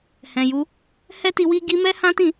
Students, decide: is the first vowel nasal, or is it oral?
nasal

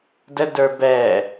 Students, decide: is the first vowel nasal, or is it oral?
oral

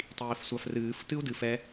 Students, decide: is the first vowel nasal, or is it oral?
oral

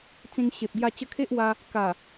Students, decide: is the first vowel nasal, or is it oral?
nasal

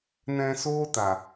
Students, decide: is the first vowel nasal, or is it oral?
nasal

